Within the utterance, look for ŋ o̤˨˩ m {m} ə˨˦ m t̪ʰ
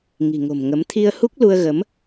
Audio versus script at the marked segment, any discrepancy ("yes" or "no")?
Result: yes